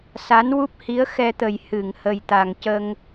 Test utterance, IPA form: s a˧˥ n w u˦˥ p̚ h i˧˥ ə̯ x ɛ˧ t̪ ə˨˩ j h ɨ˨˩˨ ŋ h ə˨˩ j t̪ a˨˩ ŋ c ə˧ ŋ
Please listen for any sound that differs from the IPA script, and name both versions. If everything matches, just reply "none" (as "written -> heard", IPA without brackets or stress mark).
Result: none